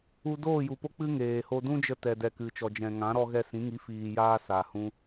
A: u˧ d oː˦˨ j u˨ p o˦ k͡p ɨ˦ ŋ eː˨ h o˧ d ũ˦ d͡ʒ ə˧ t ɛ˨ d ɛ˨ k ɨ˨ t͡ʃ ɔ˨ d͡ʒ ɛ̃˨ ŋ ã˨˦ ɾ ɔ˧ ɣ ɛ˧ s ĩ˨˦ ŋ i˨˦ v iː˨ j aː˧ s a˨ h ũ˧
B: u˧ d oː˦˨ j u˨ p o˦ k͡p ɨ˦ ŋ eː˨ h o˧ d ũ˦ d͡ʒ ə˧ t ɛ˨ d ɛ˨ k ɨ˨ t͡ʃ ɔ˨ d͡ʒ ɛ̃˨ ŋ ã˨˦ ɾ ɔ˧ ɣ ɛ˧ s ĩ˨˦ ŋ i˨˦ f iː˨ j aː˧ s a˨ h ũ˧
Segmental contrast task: B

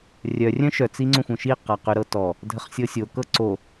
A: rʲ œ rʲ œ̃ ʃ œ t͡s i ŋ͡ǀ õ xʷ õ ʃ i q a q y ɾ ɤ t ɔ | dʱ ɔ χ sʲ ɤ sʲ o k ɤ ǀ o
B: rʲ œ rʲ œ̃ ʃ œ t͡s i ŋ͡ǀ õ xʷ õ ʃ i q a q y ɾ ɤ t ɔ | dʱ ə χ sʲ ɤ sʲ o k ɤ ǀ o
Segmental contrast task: B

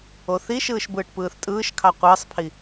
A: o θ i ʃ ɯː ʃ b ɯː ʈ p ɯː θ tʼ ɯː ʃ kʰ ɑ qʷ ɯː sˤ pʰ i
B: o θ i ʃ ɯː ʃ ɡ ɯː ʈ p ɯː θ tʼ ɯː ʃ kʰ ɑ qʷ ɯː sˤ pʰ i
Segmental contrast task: A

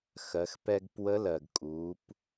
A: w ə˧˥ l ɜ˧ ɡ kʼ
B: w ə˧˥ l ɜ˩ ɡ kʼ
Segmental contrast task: B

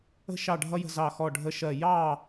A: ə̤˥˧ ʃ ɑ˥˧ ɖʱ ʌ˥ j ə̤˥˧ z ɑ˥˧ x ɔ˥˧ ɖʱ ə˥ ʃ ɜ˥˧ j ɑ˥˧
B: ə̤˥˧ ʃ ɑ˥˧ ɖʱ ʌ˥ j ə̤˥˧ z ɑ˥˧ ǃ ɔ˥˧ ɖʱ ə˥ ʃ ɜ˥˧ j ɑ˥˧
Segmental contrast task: A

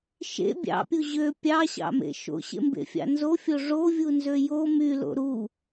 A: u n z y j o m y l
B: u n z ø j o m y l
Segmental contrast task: B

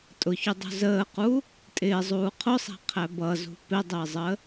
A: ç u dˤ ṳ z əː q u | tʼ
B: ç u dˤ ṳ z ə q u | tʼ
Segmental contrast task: A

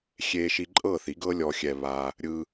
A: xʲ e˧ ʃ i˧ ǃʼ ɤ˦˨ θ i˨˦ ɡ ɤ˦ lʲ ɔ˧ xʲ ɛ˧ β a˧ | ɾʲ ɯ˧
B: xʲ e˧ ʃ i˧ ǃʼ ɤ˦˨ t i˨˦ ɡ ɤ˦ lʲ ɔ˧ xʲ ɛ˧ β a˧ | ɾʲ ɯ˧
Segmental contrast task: A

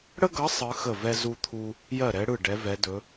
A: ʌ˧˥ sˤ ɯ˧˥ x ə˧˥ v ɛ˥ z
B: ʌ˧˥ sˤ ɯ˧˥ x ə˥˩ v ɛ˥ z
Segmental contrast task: B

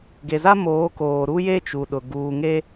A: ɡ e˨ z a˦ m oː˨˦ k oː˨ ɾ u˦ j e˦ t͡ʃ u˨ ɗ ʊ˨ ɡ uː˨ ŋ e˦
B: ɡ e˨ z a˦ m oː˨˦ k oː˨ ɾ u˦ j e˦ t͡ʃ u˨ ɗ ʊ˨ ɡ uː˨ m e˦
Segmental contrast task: A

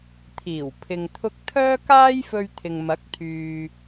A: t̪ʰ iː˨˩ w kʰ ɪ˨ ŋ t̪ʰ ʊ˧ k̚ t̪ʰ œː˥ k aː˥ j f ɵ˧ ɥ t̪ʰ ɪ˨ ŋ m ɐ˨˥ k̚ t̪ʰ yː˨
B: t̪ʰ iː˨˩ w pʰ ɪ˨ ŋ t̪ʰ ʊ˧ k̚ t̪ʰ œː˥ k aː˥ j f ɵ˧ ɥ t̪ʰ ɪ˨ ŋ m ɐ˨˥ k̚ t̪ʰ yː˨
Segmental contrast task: B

